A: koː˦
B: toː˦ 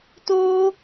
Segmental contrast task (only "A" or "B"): B